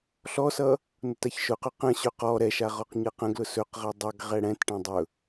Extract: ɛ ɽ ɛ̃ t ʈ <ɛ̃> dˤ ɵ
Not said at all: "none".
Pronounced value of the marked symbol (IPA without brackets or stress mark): ɛ̃